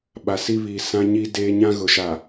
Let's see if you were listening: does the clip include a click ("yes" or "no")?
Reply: no